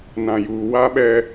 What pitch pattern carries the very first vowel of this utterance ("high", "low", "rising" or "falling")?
low